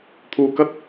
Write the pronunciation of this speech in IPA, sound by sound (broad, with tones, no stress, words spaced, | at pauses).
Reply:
t̪ʰuː˧kɐ˥t̚